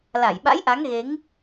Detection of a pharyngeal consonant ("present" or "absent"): absent